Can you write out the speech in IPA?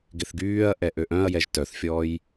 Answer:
ɡ ɪ θ ɡ yː ɐ̯ ʔ ɛ ʔ ø ʔ œ̃ ɐ̯ j ɛ ʒ t œ θ fʲ ɔː j

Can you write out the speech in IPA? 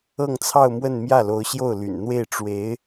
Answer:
ɤ˥˧ ŋ t͡sʰ ɑ˥˧ ʊ̯ m w ə˥˧ n m j ä˥˩ l o˧˥ ʊ̯ ɕ j o˥˩ ʊ̯ l y̰˨˩ n n̪ w e˥˩ ɪ̯ ʈ͡ʂ w e˧˥ ɪ̯

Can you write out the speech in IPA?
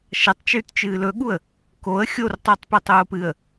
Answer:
ʃ ɐ tˤ t͡ʃ ʉː t t͡ʃ ɨː l ɵ ɠ u ə̯ | k o ə̯ xʲ o r tˤ u tˤ p ʉ tˤ oː p ɨ ə̯

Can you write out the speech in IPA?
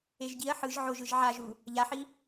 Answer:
e ʒ ɟ i ɐ̯ ħ ɯ ʒ ʕ o ʒ ɯ ʒ ʕ a ʒ u | ʎ a ħ i

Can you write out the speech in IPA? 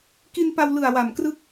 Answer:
k i˧ n p a˧ w l ɯ˨˩ a̯ w a˨˩ m k r ɯ˦˥ k̚

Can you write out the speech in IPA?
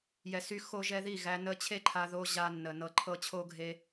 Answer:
j ɛ˧ s y˦ x o˦ ʒ ɛ˦ ð i˦˨ ɣ æ˧ n ə˦ t͡ɕʰ e˦ ǃʰ a˧ ð o˧ ʑ a˧ nː ə˨ n ɤ˧ ǃʰ ɤ˦ t͡ɕʰ o˦ ɡʱ e˧

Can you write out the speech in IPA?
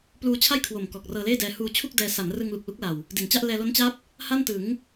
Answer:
p l uː˧ t͡ɕʰ a˥˩ j kʰ w o˨˩ m k ɔː˨˩ k̚ r ɤː˧ l eː˥˩ d ɛː˧ h uː˧ t͡ɕʰ u˥˩ k̚ d ɛː˧ s a˩˦ n r ɯ˧ ŋ l u˨˩ k̚ l u˦˥ k̚ l a˨˩ w | d i˨˩ n t͡ɕ a˥˩ ʔ l ɛː˧ l o˦˥ n t͡ɕ a˦˥ p̚ | h a˥˩ n t ɯ˩˦ ŋ

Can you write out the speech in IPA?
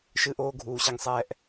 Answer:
ʃ ɨ˨ ʔ oː˨ ɡʱ uː˨ ɕ ɛ˦ ŋ sˤ ɛː˦ ʔ

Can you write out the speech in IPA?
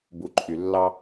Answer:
b u˨ ǃʼ y˩ lː ɑ˦

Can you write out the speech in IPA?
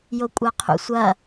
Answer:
j o kʷʼ a qʰ ṵ sʷ ɐ

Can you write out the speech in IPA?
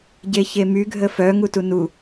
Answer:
ɟ e ç e m y ɡʱ ə f œ ŋ u t u n u

